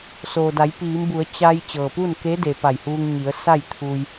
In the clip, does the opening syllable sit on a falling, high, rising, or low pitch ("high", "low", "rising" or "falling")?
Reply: low